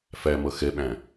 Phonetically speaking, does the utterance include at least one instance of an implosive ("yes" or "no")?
yes